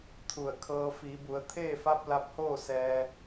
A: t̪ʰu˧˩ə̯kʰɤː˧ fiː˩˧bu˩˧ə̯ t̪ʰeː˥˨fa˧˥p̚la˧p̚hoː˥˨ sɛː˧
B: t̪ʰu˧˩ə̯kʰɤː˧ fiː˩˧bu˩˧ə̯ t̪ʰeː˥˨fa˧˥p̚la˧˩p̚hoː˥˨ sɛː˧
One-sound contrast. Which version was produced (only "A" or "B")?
A